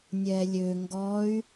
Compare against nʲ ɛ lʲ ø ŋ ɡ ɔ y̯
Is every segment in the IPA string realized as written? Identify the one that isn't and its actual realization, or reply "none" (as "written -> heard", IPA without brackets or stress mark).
none